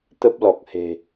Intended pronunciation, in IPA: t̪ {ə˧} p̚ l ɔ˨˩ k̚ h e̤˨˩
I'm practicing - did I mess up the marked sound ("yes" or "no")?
yes